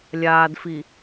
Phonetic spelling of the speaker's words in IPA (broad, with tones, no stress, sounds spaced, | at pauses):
lʲ aː˨ d f i˨